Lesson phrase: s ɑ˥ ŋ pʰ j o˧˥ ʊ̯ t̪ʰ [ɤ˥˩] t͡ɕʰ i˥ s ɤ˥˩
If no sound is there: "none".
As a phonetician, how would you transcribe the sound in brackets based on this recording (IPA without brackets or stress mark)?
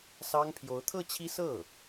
ɤ˥˩